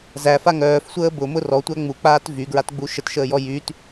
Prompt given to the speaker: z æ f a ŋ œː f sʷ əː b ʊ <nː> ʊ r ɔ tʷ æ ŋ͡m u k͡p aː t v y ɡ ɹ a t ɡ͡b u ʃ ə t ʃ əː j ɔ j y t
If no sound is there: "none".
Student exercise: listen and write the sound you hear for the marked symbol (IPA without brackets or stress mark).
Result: m